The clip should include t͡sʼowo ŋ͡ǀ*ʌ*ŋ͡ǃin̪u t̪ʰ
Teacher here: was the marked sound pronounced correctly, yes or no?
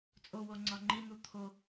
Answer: no